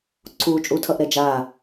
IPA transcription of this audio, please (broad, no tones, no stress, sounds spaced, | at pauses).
ǀʰ uː t͡ʃʼ u tʰ ʌ ʔ ɾ ɛ d͡ʒ aː